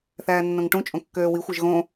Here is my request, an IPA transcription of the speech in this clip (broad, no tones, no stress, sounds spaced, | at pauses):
θ æː nː õ ŋ ʈ ũ t͡ʃʼ õ kː øː w i xʷ e ʒ ɣ õ